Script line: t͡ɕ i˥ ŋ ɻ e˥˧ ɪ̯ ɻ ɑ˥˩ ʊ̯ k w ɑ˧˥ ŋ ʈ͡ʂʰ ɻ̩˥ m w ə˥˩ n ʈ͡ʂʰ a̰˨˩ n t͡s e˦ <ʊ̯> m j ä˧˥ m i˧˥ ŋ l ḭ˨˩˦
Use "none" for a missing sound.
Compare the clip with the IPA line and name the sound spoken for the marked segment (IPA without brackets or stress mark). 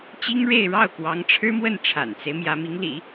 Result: ɪ̯